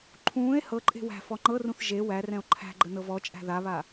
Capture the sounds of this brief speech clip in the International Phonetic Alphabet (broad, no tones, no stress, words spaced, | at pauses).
ǃʰũːe̯ hɤǃʼe̤ wæ̤ fɔŋ͡ǃɤrũθ ʒe wærɛ̃o̯ ǃʰæ̤ɡ͡ǃə nɤvɔt͡ʃʼæ̤ ðaβa